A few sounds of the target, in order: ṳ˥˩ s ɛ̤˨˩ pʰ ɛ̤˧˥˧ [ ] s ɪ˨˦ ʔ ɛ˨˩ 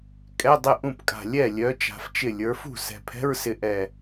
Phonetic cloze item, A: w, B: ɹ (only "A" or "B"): B